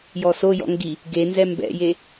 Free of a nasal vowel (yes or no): yes